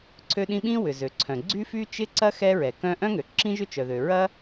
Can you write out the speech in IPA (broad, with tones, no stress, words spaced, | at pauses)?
ǀʰø˥ɗĩ˥ ɓĩ˥wʏ˩zø˩ ǀʰœ̃˩ɡ͡ǀy˥fy˥ t͡ʃɪ˥ǀɐ˥ xɛ˥ɹɛ˩kœ̃˥ ʔœ̃˥ŋø˩ ǁĩ˥ʒʏ˥t͡ʃœ˩ðø˩ ɹɐ˥